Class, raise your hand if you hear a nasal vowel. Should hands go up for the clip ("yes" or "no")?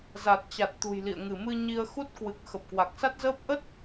no